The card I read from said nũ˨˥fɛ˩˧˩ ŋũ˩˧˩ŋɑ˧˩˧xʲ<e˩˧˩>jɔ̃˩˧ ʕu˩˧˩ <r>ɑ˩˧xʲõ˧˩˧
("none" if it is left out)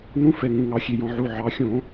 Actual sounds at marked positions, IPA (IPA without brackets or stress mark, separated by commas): e˩˧˩, ʕ